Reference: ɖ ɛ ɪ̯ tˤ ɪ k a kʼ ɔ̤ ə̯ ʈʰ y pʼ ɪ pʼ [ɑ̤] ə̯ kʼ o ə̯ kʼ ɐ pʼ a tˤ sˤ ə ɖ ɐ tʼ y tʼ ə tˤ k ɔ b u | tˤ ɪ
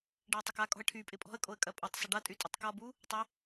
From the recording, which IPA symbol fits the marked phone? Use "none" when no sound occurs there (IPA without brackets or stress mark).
ɔ̤